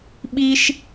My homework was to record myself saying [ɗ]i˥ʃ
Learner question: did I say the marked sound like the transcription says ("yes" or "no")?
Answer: no